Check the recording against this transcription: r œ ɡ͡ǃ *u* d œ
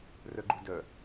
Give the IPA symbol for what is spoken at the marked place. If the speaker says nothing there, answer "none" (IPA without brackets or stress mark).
u